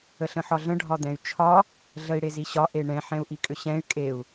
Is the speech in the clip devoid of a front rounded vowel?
no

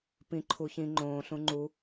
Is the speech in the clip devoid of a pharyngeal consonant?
yes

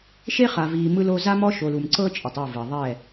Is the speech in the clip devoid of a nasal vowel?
yes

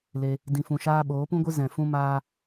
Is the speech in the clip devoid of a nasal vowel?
no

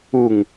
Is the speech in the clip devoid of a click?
yes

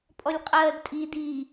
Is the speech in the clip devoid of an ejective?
no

